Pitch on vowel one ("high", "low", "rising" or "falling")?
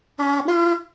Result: low